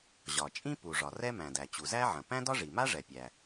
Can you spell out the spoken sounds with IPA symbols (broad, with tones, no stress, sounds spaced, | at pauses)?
ʑ ɒ˩ t͡ʃʼ ĩ˥ p u˩ ʐ ɒ˩ r ɛ˥ m æ̃˩ d æ˩ t͡ɕ u˩ z æ˥ ʕ ɐ̃˩ p æ̃˥ d ɒ˥ ʐ i˩ m a˥ ʐ ɛ˩ pʲ æ˩